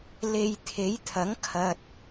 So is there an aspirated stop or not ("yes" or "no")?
yes